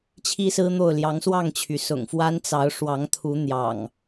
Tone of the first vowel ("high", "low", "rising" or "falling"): high